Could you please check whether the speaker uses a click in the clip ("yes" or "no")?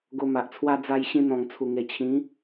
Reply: no